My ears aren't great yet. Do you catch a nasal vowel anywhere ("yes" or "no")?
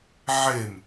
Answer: no